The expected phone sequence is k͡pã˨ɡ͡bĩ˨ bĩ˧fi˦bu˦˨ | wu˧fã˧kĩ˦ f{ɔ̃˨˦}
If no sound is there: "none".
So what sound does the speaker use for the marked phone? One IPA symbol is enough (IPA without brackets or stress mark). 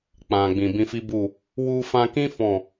ɔ̃˦˨